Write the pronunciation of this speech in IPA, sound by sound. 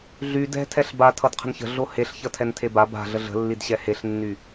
ɮy dɛ̤tʰɛɬ ba tʰʌdqʰə̤nçə̤ ɮoheɬçʌ tʰɛntʰeba ba̤ ɮəɮə̤lːidɕɛ heɬnːy

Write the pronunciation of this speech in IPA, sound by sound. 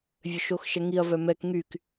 vʲøʃoxʃɛŋiɐ̯ vœmɛk ŋyk

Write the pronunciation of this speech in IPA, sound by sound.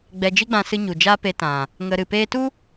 ɡ͡bɛ˧d͡ʒi˦ɡ͡bã˧ sɨ˦ ɲu˨d͡ʒaː˦pe˧tã˨ | ŋə˧ ɾɨ˨peː˧tu˦

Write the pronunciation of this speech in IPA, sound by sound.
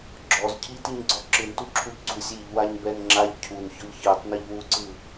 ɡ͡ǁɔz cʰitiɲɡ͡ǀɔ ǁɯntuǁʰuʎ ɡ͡ǀusʲ iʎwaɲbɛn ŋ͡ǁaʎ cʰunçɔʎ çɯtˤniʎ wuǀɯ

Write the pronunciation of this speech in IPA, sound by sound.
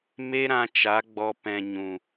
me˦ɾã˧t͡ʃa˨˦ ɡ͡bɔ˦ pɛ̃˧ ɲũ˨

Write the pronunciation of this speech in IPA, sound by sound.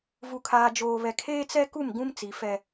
vu˨kʰaː˨d͡ʒoː˨βɛ˨ kʰeː˦t͡sɛ˦ ku˦˨m ɡũ˦m t͡si˨ fɛ˦

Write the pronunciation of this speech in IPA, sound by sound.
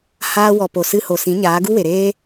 haː˧wɔ˨po˨ sɨ˧ho˨sĩ˨˦ ɲaː˨˦ɡu˦we˨ɾeː˦

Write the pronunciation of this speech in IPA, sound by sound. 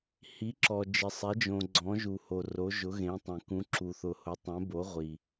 hi˨˦ǁɔ˨ d͡ʒɪ˨sˤɛ˨˦d͡ʒõ˨ ɡ͡ǀɔ̃˨˦ʒu˨ho˨ ro˨˦ʒʊ˨˦ ɣẽ˨˦tˤẽ˨ kũ˨˦ǁu˨ θʊ˨hʊ˨˦tˤɛ̃˨˦bo˨˦ ʁʷi˨

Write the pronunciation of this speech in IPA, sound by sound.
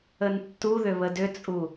əntːuðʏ βədʏt͡sʼu

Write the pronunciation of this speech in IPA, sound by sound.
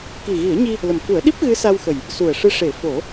ki˨˩ɣi˨˩˦ə̯ɲi˧ | lə˨˩mfu˨˩˦ə̯ɗi˦˥p̚ ɣɨ˧˥sa˧wxə˨˩j | su˨˩ə̯ʂɨ˧˥ʂe˨˩˦ fo˨˩˦

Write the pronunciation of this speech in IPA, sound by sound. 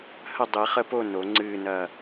hə˦˨dˤi˨˩˦χə˦˨po˦˨ no˨˩˦ŋ͡ǀɨː˦˨nɐ˦˨

